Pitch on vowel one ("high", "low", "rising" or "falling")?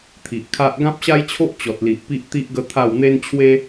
low